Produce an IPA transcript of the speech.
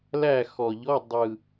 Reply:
l æ˥˨ x ɔ˨˩ ʎ ɔ˧˥˧ dˤ ɯ˨˩

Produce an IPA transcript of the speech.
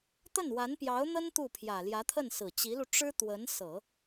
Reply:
t̪ ə˥˩ n w a˧˥ n p j ɑ˧˥ ʊ̯ n̪ ə˥ n t̪ u˥˩ pʰ j ä˨˩ l j ä˧˥ t̪ʰ ə˥˩ n s ɹ̩˨˩ t͡ɕ i˧˥ l u˧ ʈ͡ʂ ɻ̩˥ t̪ w ə˧˥ n s ɤ˨˩˦

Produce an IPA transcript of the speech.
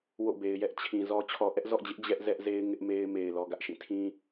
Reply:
w o̰˦˨ b e˨ ɪ̯ j ɛ˦ ʔ t͡ɕʰ ĩ˨ z ɔ˦ t͡ɕʰ ɔ˨ ʔ ɛ˦ ʔ z ɔ̰˦˨ d͡ʑ ɪ˦ ʔ d͡ʑ ɛ˦ ʔ z ɛ˦ ʔ z e˦ ɪ̯ ŋ ɪ˦ ʔ m e˦ ɪ̯ m e˨ ɪ̯ l ɔ˨ ɡ ä˦ ʔ ʃ ĩ˦˨ tʰ ĩ˦

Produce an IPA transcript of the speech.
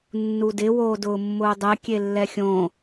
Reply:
nː u d ɪ w oː d ʊː mː ʊː dˤ ɛ kʲ e lː ɛ xʲ õ

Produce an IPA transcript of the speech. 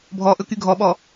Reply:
bʱ ɔ ʔ ɵ k y ɡʱ ɔ ɓ ɔ

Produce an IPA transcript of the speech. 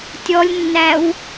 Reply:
tʲ ɔ lʲ nː æ w

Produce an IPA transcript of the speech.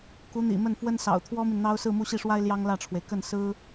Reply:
k u˧˥ n̪ ḭ˨˩ m ə˥˩ n f w ə˥ n s ɑ̰˨˩ ʊ̯ t̪ʰ w ɔ˥ m i˨ n n̪ ɑ˥ ʊ̯ s ɹ̩˥˧ m u˥˧ ɕ i˥˩ ʂ w a˥ ɪ̯ l j ɑ˥ ŋ l ä˥˩ ʈ͡ʂʰ w e˩ ɪ̯ k ə˥˩ n s ɹ̩˥

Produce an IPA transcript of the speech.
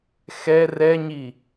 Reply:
x ɛ r ɛ ɲ i

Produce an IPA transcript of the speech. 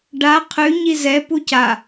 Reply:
ɖ a qʰ ʉ ɲ i z ɛ p u c a

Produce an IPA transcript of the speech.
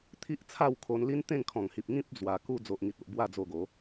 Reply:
t̪ʰ i˦ ʔ t͡sʰ a˥˧ w kʰ o˧ n l i˦ n t̪ ẽ˥˧ ŋ kʰ ɔ̃˨˩ ŋ h i˨ p̚ ŋ ĩ˦ p̚ d͡z w a˧ k u˦ d͡z o˨ ʔ ŋ i˨ t̚ o˨ ʔ b w a˥˧ d͡z o˧ ɡ o˨˦

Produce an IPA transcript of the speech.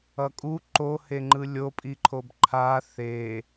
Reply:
ʌ kʼ u ǃ o h e ŋ͡ǃ ɯ lʲ o pʼ i ǃʰ o b ǃʰ a θ e

